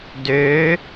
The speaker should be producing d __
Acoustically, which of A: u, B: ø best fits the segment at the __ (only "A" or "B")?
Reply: B